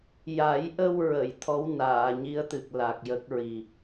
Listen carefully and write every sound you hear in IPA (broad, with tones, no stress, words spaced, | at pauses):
ja˨˩˦jʔə˧wɹə˨˩˨j t̪ʰɔ˧˥wnaː˨˩˨ɲi˧˥ə̯t̪ɨ˨˩k̚ la˨˩k̚jə˦˥k̚ɹi˨˩